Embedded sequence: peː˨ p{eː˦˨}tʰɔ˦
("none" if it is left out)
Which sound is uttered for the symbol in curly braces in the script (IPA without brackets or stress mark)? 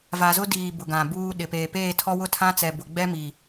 eː˦˨